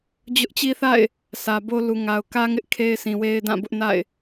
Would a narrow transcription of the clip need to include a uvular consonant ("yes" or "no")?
no